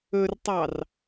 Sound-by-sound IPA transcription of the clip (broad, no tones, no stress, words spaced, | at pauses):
ɵrtˤɑr